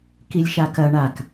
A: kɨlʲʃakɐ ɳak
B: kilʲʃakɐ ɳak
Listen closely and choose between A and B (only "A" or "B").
B